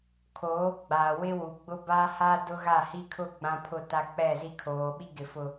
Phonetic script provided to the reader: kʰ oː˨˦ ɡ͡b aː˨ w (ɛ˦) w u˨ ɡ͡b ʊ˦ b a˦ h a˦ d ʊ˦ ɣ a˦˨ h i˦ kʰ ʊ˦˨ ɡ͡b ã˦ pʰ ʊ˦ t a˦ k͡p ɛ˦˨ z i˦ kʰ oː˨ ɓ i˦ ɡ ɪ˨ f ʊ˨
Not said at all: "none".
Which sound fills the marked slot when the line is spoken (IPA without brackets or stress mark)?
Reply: ɪ˦